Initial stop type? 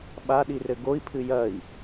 implosive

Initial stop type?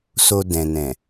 plain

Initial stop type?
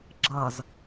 click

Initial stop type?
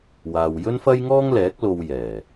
plain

